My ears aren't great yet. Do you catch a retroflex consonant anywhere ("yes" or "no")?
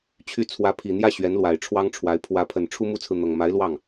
yes